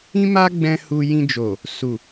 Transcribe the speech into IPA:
ĩ˦ m a˦ ɡ͡b ɛ̃˦ h u˧ j ĩ˧ d͡ʒ o˨ | s u˨

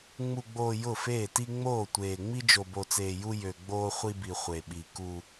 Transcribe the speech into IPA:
ŋ͡m u˨ ɡ͡b oː˨ j ʊ˦˨ f eː˦˨ t i˦ ŋ͡m oː˦˨ tʷ eː˨ ŋ͡m i˦ d͡ʒ o˨ b o˨ t͡s eː˨ j u˦ j ø˨ ɡ͡b oː˦ χʷ i˦ b i˨ χʷ e˨ ɓ i˨ k u˦

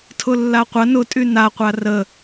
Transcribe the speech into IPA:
tʰ ʊ lː a qʷ ɐ n ʊ tʼ y n a qʷ a r ə

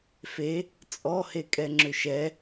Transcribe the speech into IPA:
f e | t͡sʼ ɔ h e kʼ ɛ ŋ͡ǁ ʏ ʃ ɛ

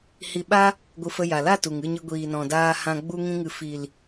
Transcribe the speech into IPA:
h i˧ ɓ a˦ | ɡʷ ɨ˧ f ə˧ j a˨ l a˦˨ t u˨ ŋ ɨ˦˨ ɲ ɨ˧ ɡʷ iː˨ n ɔ̃˨ d aː˧ h ã˧ ɡ͡b u˧ ŋ ĩ˦ ŋ ɨ˧ f i˨ l

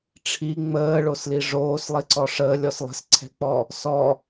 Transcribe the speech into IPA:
ʈ͡ʂʰ i ŋ͡m əː ɭ o s l i ʐ oː s lˠ i ǀ ɔ ʂ əː lʲ ɔ s lˠ ə̤ s ǀʰ ɛ̤ k͡p ɔ | s ɔ

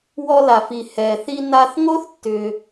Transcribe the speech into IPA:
w ɔ˧ l a˩ f i˩ h ɛ˩ θ i˧ n a˧ θ ŋ o˥ θ tː ʏ˩

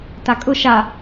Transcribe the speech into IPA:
t a kʼ ʊ ʃ a

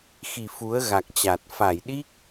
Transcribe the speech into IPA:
x i˨˩ f u˨˦ ə̯ ɣ a˨˩ k̚ t͡ɕ a˨˩ t̚ f a˧˩ j ɗ i˦˥ k̚

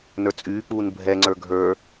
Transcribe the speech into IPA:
n ə˞ t͡sʼ yː k͡p uː n bʱ ɛ ŋ͡ǀ ə˞ ɡʱ ə˞

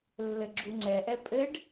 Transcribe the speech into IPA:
lː ɘ ɡ͡ǁ u ŋ͡ǀ ɛ ʔ ɛ pʼ ɘ ɖ

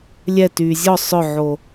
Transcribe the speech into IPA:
lʲ ɛ t yː zʲ ɔ sˤ œ ʕ o

